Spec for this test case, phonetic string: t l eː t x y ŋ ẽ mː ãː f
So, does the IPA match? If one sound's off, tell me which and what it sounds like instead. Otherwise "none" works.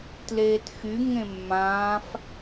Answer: none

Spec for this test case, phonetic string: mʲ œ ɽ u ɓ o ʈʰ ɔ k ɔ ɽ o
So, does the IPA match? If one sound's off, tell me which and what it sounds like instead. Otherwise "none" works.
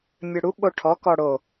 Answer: none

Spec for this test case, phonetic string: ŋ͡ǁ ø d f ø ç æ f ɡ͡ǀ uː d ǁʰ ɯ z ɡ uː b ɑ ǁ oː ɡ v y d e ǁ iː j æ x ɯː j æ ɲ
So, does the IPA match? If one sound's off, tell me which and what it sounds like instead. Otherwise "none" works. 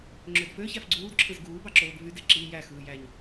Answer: none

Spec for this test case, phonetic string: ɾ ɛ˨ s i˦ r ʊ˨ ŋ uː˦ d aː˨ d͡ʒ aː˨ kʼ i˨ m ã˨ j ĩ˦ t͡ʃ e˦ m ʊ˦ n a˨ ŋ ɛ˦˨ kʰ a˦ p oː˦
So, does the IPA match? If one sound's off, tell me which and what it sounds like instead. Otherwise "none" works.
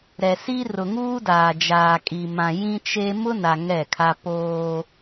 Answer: none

